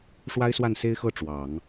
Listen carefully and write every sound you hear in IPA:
ʂ w a˥ ɪ̯ s w a˥˩ n s e˥ ɪ̯ x ɤ˥˩ ʈ͡ʂ w ɑ˨˩˦ ŋ

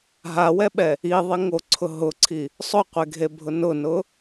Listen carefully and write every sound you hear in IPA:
ɦ a w ɛ ɓ ɛ | i ðˤ i ŋ o ǀʰ ʊ ɦ ʊ ǀʰ i | sˤ ʊ qʷ e ɡʱ e bʱ ʊ n ʊ n ʊ

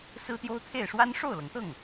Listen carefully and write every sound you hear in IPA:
s ɹ̩˥ t̪ j o˥ ʊ̯ t̪ʰ e˥˩ ɪ̯ ʂ w a˥ n ʂ o˥˩ ʊ̯ l ɤ˩ ŋ t̪ ɤ˥˩ ŋ

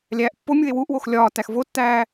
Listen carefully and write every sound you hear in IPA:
lʲ æː ʔ pː o mʲ u e̯ w u ʔ w o x lʲ ɒː t æ x v o tː æː

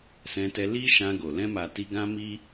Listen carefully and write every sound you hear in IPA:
s ɛ̃˧ t ɛ˧ l i˦ ʃ ã˧ ɡ o˨ l ɛ̃˧ m a˨ t i˧ ɡ ã˧ m i˧

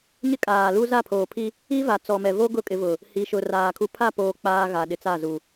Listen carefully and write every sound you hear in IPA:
ɲ ɪ˦ kʼ aː˨ l u˦ z a˦˨ pʰ oː˨ pʰ i˦ | i˦ v a˨ t͡s ɔ˨ m ɛ˨ v o˦ ɡ ʊ˦˨ kʼ ɪ˨˦ v ʊ˨ | h i˨ ʃ ʊ˨ r aː˨ kʰ u˨ pʰ a˦˨ p oː˨ k͡p aː˨ ɣ a˨ ɗ ɪ˨ t͡s a˦˨ z u˨

